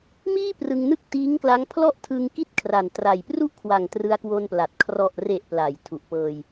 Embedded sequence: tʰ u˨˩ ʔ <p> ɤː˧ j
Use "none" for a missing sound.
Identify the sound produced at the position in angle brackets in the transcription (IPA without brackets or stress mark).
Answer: p